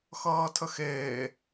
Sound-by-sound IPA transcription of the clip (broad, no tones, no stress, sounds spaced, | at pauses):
x ʌː tʰ ə x eː